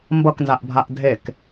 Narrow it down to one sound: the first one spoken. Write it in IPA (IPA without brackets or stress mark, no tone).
m